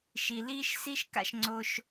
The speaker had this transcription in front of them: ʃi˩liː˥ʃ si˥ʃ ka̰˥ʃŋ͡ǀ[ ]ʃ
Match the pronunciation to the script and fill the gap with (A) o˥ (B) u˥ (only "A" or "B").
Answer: A